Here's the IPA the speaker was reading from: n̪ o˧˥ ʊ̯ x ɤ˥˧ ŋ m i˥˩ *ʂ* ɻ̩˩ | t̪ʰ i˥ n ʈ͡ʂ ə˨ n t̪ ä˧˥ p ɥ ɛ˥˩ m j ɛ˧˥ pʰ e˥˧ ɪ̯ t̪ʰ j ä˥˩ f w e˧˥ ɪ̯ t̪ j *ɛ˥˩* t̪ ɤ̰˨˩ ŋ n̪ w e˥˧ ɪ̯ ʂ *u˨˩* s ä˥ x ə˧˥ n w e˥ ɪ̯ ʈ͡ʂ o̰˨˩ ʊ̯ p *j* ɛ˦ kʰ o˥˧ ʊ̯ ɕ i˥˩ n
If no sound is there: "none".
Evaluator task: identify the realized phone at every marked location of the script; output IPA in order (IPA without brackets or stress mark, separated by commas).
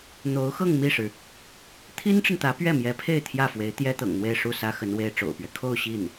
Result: ʂ, ɛ˥, u˥˩, ɥ